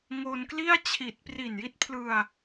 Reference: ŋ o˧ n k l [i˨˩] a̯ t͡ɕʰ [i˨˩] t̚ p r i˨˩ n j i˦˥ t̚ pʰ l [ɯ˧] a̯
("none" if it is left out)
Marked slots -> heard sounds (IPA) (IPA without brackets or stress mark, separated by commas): i˥˩, i˨˩, ɯ˧